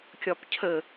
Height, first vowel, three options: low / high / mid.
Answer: low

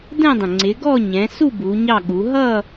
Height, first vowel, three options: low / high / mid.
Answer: mid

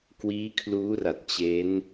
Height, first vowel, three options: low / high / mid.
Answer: high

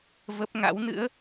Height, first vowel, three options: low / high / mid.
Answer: mid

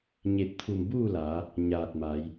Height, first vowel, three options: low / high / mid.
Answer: mid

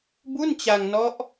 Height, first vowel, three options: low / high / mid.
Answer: high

